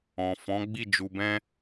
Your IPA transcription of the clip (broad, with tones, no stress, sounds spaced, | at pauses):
ɔ̃˨ f ɔ̃˨˦ ɡ͡b i˦˨ d͡ʒ u˧ b ɛ̃˦